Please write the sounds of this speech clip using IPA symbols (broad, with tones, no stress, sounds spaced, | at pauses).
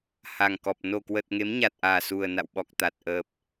h a˨˩ ŋ k ɔ˨˩ p̚ n o˨˩ k w ə˨˩ t̚ ŋ e˨˦ m ɲ a˨˩ t̚ ʔ aː˨˩ s u˨˩ ə̯ n a̰˧˨ w ɓ ɔ˨˩ k̚ t̪ a˨˩ t̚ ʔ ə˨˩ p̚